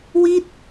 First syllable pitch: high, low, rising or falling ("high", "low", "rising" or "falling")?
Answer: falling